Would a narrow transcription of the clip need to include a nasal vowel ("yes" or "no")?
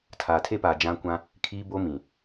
yes